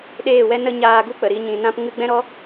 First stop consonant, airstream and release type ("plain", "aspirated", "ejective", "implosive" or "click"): implosive